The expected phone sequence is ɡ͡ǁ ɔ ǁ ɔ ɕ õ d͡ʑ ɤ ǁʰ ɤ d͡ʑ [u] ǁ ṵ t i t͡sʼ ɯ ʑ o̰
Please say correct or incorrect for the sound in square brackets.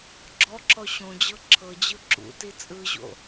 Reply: incorrect